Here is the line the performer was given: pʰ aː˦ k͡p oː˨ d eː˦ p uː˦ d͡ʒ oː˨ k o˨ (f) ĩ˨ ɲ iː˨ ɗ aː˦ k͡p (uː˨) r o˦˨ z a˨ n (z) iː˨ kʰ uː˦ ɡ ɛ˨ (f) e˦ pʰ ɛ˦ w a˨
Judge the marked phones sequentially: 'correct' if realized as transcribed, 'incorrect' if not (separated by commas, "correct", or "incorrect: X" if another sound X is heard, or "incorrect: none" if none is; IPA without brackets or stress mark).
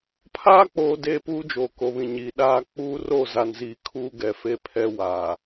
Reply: incorrect: β, incorrect: uː˦, correct, correct